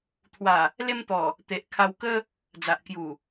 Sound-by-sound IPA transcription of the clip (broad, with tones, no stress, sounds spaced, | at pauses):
t̪ʰ w a˨˩ | l e˧ m t̪ ɔ˨˩ | t̪ e˨ ʔ kʰ a˧ w k ə˦ | d͡z a˨ ʔ k j u˨˩